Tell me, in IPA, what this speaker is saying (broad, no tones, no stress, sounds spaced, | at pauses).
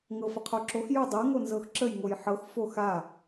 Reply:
ŋ ɤ f ə qʰ o ǁ o x j u dˤ ɤ ŋ o n z ɤ x ǁ ə j ŋ o j ħ ɤ x f o x a